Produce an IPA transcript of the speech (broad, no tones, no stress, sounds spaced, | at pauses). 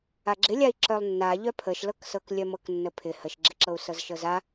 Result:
a ɡ͡ǁ ɪ lʲ a i̯ ǁ œ lˠ nː a ʎ œ pʰ ə ʃ l ɤ k s ɤ k lʲ œ m ɤ k nː ə pʰ ɪ h ə ʃ ɡ͡ǁ ɪ ǁ ɤ u̯ s ɤ z ʃ ɤ z a